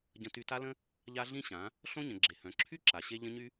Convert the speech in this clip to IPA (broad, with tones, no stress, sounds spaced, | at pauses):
ɟ ə̃˧ t y˧ t a˦ l ə̃˦ | ʎ a˦ ɮ ĩ˦ ɕ ã˨˦ | ɬ õ˦ ɲ ə̃˨ ɡ͡ǁ e˨ h œ̃˨ ǁʰ y˦ ǁ a˨ ɕ e˧ ʎ ə̃˦ ɲ y˦